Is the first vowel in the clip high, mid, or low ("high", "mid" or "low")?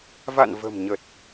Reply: low